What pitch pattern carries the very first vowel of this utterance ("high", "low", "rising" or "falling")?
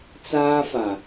high